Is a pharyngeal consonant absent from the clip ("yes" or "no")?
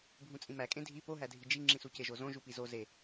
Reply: yes